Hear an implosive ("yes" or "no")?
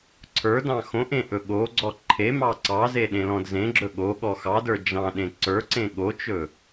yes